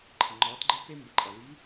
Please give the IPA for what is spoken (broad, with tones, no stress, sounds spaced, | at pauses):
ǃʰ ə˩ ŋ͡ǃ ɒː˩˧ t ɡ͡ǃ ə˧ l t e˧ m b ə˩˧ ǃʼ ʌ˩ l i˧˥